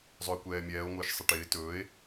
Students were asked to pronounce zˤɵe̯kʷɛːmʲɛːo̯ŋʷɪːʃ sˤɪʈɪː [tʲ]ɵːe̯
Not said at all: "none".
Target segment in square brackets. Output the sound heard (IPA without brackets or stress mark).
t